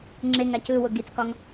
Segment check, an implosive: absent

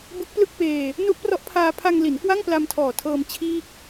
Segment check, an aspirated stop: present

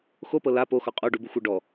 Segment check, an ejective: present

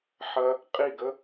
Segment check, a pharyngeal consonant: present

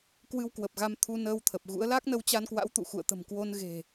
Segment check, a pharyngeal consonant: absent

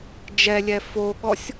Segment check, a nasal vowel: absent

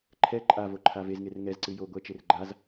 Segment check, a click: present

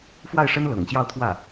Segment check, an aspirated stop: present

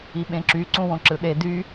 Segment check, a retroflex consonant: absent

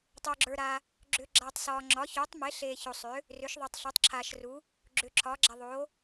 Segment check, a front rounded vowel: present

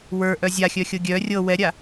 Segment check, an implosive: absent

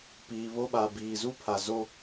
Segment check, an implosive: present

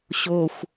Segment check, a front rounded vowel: absent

